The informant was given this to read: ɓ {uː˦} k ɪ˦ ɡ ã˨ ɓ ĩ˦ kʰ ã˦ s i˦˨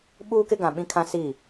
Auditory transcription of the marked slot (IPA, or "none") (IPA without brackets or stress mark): uː˦